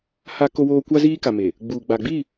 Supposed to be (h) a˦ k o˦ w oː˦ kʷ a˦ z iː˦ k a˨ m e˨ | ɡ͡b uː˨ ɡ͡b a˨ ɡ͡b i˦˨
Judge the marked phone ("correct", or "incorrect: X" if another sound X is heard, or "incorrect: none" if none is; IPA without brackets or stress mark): correct